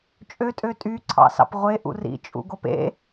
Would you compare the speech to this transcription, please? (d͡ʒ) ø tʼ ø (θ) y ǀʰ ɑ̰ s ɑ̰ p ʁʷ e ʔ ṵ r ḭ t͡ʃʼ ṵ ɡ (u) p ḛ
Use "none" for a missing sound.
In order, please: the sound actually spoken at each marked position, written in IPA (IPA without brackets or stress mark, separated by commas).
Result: t͡ʃʼ, tʼ, o